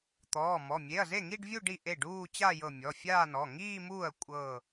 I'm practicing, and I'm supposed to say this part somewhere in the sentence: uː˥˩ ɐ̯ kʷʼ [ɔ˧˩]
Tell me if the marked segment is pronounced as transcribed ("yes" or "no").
no